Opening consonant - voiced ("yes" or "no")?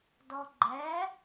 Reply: yes